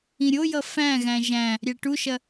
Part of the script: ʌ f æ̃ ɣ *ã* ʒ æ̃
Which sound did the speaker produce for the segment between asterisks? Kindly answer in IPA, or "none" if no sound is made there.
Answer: æ̃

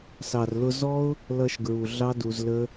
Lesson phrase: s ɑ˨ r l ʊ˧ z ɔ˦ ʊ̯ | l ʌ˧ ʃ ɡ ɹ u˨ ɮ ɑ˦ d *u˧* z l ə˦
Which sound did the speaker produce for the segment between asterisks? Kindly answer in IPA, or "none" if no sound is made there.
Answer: u˧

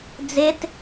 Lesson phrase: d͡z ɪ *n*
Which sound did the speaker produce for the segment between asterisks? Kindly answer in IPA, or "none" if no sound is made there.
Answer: t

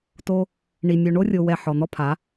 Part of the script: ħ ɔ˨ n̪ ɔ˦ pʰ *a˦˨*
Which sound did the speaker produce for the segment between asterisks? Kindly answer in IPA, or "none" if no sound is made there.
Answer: a˨˦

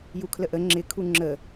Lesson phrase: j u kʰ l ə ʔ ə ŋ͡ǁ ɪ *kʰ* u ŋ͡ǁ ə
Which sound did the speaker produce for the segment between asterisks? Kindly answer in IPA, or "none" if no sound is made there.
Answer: kʰ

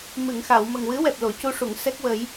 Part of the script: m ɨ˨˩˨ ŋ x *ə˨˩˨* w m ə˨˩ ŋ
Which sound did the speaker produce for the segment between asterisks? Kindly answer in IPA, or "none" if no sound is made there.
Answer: a˨˩˨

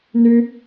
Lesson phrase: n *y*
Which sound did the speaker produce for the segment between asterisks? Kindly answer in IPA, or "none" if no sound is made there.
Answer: y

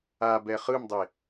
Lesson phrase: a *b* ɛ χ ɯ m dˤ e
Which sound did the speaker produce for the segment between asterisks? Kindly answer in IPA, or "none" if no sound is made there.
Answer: b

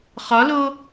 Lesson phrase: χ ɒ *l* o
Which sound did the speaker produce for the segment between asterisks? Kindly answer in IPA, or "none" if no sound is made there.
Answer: l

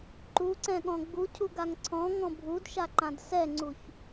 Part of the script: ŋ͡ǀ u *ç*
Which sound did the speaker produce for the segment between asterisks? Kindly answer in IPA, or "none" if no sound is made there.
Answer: ç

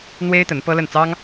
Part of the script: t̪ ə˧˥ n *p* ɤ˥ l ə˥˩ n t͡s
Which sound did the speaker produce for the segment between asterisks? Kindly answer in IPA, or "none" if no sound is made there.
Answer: p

